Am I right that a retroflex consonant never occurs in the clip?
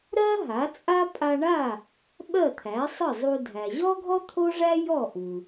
no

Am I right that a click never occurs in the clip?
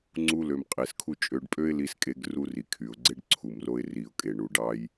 no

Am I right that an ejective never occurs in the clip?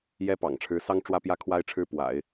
yes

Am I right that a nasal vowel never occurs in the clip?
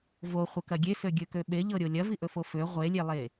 yes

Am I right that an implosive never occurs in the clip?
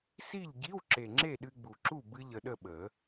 no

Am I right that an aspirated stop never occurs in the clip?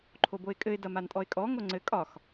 no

